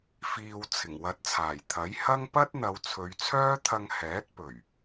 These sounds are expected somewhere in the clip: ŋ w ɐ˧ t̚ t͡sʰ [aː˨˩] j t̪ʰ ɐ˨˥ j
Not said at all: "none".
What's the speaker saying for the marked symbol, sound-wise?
aː˨˩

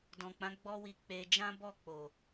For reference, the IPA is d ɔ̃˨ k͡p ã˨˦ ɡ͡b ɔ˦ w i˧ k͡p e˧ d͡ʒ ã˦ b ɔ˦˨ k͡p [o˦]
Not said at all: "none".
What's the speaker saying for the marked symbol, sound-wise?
o˨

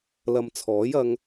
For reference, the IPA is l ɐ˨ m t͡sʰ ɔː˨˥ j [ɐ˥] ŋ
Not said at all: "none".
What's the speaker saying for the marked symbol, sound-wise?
ɐ˧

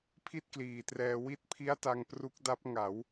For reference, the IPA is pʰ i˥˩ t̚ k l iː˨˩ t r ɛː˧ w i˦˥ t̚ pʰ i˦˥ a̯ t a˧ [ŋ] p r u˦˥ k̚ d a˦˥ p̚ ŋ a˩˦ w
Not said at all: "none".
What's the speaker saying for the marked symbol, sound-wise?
ŋ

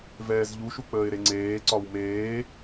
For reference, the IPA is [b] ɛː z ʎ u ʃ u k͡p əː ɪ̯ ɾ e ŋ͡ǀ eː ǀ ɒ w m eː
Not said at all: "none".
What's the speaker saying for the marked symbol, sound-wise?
v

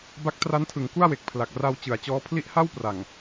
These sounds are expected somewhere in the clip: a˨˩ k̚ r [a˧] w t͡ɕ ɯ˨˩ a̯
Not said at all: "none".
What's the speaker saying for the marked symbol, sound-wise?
a˧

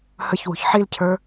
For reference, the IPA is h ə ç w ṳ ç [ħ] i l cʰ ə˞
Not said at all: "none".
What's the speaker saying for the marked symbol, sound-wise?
ħ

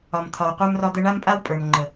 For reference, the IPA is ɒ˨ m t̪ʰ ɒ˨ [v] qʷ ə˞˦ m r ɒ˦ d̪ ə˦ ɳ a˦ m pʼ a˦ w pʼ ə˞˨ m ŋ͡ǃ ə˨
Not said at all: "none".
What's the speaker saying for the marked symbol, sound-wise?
w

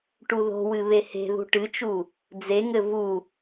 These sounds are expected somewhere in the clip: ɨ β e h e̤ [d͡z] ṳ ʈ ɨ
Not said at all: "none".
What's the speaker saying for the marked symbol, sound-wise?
ð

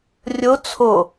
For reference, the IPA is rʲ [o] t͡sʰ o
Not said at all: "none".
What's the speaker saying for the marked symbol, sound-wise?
o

